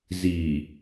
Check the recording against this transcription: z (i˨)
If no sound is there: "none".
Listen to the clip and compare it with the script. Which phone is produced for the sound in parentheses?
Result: i˨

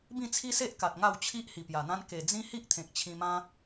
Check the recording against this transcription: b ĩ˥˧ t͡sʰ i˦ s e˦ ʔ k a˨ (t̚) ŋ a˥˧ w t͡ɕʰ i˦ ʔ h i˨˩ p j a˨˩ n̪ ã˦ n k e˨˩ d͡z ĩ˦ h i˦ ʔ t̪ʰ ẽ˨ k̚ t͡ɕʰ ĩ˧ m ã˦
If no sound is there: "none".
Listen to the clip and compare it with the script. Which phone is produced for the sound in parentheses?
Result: t̚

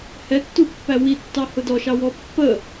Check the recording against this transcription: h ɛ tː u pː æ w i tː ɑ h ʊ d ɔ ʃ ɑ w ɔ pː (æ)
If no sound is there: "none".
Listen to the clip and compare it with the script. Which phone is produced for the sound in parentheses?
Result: ə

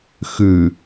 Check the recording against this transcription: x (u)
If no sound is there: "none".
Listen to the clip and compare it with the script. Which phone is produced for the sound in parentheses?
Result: ʉ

